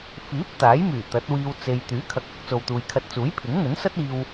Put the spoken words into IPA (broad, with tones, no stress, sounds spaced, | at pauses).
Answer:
f iː˨˥ p̚ t̪ aː˨˥ j m yː˨˩ t̪ ɐ˨˥ t̚ w iː˧ w t͡s e˨ j t̪ yː˨˥ kʰ ɐ˨ k̚ ɐ˨˥ k̚ t͡s o˨ w t̪ uː˨ j kʰ ɐ˧ t̚ t͡s uː˨˥ j pʰ ɪ˨˥ ŋ n̪ ɵ˨˥ n s ɐ˥ t̚ iː˧ w